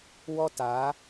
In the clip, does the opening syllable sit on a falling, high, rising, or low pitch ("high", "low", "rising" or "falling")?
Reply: high